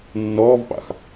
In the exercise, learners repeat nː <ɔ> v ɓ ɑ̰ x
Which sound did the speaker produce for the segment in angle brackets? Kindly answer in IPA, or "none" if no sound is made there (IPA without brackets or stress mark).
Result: ɔː